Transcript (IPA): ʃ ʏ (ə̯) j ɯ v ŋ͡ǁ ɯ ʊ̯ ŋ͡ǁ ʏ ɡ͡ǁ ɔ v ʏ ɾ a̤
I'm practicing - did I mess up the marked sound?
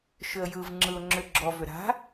no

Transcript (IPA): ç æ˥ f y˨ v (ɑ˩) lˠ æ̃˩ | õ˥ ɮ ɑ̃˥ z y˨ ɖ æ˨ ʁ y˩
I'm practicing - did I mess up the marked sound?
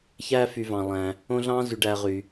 yes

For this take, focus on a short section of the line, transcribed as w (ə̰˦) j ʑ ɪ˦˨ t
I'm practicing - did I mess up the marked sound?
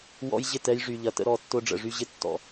yes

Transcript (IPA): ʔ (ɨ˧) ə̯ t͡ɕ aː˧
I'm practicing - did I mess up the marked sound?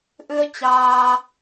no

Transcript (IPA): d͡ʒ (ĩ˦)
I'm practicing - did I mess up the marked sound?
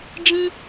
no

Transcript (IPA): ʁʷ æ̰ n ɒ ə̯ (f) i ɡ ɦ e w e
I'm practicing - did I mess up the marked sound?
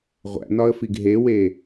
no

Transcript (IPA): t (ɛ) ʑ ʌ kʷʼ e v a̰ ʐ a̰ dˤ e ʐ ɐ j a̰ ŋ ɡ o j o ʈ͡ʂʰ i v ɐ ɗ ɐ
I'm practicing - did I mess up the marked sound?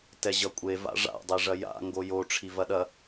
no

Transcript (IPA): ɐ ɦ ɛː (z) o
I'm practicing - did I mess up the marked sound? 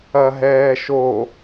yes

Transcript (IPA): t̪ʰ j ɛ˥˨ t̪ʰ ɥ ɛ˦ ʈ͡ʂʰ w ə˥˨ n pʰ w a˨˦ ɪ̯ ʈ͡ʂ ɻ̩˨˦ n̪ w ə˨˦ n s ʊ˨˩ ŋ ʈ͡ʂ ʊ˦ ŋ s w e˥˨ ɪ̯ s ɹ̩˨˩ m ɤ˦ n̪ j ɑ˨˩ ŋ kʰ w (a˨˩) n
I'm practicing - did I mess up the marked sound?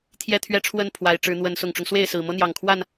yes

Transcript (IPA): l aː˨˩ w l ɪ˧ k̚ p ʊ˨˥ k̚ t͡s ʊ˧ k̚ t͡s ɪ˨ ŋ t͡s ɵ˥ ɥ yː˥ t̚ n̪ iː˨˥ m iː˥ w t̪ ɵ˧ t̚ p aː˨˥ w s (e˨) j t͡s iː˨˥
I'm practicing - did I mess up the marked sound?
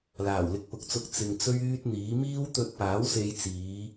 yes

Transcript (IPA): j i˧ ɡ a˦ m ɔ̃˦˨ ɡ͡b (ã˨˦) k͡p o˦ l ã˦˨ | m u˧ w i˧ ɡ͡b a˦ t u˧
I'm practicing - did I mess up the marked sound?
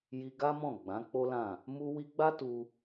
no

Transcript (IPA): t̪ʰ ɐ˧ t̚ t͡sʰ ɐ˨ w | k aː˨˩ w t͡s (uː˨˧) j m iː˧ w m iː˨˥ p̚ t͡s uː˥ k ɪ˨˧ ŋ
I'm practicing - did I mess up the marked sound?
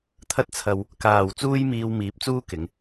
yes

